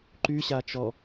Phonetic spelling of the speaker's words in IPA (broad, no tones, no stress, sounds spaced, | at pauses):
ǃ y ɕ a t͡ʃ ɔ